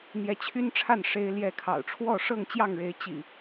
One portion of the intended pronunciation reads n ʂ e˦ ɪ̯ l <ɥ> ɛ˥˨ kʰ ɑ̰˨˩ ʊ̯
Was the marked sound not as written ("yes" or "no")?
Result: yes